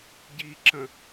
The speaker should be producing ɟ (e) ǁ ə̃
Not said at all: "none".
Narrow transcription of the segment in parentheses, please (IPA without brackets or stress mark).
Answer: i